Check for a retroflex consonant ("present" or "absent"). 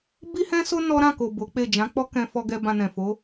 absent